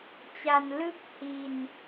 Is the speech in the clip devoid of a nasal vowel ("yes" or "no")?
yes